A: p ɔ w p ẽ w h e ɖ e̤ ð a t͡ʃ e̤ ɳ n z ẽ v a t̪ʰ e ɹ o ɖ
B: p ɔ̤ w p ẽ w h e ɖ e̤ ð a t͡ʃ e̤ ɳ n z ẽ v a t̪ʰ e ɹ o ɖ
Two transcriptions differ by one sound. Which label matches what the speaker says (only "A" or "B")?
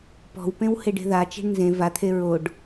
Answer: B